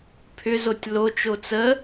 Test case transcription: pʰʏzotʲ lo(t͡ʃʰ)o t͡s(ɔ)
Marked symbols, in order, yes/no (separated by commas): no, no